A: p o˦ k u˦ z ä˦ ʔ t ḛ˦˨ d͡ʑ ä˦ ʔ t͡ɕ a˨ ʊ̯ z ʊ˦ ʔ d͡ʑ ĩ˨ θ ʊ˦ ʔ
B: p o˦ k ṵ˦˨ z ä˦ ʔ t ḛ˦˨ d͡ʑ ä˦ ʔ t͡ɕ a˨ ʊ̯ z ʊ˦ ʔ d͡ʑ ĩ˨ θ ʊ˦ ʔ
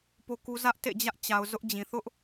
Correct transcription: A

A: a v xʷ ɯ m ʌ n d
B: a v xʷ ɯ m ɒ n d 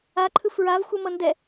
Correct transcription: A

